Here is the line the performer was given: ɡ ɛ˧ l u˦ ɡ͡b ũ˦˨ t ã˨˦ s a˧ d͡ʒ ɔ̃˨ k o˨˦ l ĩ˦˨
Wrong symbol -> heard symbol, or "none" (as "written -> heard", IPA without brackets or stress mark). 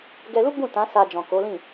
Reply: none